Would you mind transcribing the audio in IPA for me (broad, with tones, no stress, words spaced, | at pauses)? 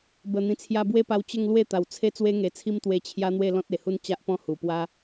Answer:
bə˨˩ n̪ĩ˨˩t͡sʰja˧bwe˦pa˧w t͡ɕə˥˧ŋlwe˥˧ t̪a˨˩wt͡sʰe˦ t͡swe˦ŋe˨˩t͡sʰi˦m t̪we˧ t͡ɕʰja˦n̪we˥˧ lɔ̃˦t̚e˨˩hu˦n t͡ɕa˦ʔpɔ̃˥˧ hu˨˩pwa˦